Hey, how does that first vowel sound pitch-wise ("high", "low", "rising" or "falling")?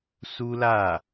high